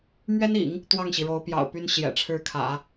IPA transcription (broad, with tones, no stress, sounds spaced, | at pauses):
m ɥ ɛ˥ n ḭ˨˩˦ ŋ | t̪ w ɑ˥˩ ŋ ɕ i˩ ɻ o˧˥ ʊ̯ p j ɑ̰˨˩ ʊ̯ p y˥ n ɕ j ɛ̰˨˩ ʈ͡ʂʰ ɻ̩˥˩ kʰ ä̰˨˩˦